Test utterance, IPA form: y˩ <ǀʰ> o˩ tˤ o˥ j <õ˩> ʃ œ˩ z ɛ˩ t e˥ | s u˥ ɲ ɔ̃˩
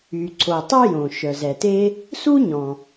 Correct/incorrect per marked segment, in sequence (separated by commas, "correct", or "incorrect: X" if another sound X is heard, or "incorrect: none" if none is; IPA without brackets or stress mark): correct, correct